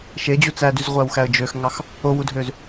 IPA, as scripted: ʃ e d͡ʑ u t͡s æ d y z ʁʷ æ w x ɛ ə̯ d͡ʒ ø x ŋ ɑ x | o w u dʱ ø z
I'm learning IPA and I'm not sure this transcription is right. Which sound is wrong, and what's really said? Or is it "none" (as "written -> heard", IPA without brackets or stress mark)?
ɛ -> æ